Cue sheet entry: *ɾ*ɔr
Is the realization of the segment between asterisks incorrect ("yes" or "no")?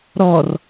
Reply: no